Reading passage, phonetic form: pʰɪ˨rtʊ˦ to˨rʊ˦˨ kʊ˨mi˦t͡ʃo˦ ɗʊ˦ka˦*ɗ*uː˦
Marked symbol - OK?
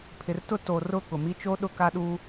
yes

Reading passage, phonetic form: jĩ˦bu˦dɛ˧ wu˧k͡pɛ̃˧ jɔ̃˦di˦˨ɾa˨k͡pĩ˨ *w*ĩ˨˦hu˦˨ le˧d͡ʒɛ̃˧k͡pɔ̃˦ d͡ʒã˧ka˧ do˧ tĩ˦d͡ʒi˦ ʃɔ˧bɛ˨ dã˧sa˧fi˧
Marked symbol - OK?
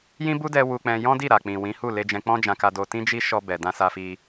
yes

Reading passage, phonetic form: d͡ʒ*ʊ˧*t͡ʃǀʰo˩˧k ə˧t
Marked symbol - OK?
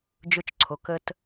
yes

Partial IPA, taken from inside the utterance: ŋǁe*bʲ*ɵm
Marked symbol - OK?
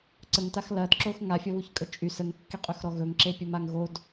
no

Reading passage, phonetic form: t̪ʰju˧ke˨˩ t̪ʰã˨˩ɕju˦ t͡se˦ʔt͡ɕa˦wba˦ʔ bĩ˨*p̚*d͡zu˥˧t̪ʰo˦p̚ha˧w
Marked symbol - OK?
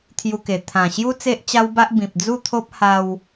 yes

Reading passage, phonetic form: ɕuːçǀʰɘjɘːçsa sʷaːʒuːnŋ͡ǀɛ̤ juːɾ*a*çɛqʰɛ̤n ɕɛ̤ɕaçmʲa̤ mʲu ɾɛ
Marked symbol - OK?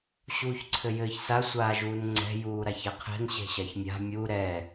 yes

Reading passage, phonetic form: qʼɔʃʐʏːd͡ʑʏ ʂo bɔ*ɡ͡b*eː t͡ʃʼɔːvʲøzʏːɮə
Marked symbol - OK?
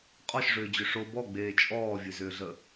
yes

